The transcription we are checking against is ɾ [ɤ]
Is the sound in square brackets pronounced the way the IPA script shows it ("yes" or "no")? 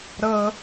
yes